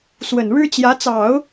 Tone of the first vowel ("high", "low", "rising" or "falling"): low